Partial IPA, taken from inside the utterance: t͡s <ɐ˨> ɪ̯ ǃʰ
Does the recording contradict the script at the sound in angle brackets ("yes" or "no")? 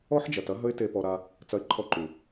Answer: yes